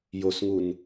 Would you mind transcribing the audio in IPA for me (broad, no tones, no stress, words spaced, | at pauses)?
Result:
josŋun